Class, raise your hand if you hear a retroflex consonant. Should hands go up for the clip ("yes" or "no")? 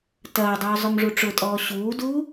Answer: yes